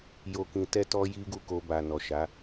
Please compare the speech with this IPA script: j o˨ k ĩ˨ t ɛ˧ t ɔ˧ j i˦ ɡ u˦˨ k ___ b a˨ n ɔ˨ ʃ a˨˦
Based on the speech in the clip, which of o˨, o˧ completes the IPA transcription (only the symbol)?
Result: o˧